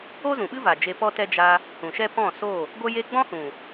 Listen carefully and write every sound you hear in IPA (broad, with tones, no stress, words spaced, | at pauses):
o˦zũ˨ɓɨ˦va˨ d͡ʒe˧pɔ˦tɛ˦ d͡ʒa˧ | hũ˨ʃɛ˦pɔ̃˦˨so˦˨ | ɡʷə˦je˦ ɡ͡bɔ̃˦hũ˨